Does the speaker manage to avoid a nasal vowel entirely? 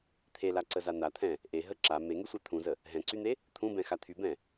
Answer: no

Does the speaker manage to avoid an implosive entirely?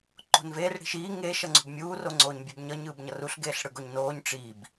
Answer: yes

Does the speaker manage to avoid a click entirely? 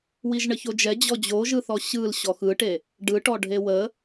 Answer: yes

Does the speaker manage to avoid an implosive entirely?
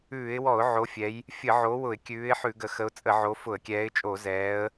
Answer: yes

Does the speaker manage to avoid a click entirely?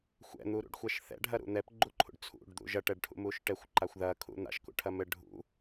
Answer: no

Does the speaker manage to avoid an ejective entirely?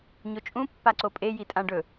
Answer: no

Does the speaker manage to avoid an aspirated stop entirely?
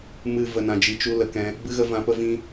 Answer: yes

